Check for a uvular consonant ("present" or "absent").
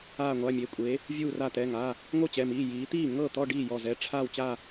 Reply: absent